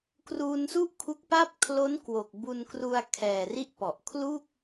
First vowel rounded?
yes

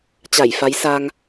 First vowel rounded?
no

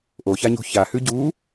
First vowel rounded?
yes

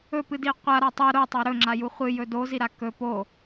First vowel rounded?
yes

